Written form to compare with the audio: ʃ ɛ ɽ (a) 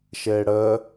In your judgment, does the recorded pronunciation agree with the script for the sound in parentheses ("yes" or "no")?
no